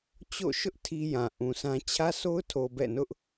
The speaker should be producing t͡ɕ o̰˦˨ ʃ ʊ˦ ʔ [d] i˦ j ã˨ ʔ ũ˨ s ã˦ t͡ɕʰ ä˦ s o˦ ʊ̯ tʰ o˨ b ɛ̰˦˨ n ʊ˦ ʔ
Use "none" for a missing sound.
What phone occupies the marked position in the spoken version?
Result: tʰ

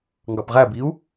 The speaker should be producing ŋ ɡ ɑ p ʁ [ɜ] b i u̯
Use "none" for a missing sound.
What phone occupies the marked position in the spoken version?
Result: æ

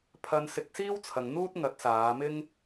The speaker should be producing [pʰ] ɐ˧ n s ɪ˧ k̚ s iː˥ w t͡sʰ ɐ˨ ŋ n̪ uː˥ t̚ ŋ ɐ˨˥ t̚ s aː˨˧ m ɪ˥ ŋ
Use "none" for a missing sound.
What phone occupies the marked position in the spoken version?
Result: pʰ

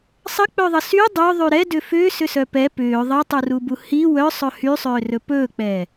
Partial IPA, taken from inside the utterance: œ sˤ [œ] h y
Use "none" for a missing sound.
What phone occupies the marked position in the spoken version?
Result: ɵ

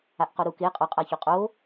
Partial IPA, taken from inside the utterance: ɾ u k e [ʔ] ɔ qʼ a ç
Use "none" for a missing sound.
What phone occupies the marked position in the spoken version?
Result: qʼ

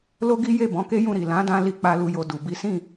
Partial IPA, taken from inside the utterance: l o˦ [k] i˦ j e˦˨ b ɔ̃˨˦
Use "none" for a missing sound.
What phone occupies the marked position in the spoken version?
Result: ɡ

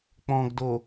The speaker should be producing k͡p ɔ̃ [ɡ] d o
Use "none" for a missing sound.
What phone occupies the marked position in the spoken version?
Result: ɡ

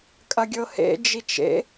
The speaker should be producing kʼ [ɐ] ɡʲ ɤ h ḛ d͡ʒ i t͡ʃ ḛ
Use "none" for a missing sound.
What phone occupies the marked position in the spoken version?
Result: ɐ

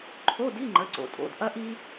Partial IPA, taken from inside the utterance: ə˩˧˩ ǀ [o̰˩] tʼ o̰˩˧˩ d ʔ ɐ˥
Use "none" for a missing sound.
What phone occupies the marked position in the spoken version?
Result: o̰˩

